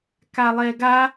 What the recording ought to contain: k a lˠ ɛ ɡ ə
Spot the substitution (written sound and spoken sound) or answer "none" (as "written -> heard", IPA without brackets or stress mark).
ə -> a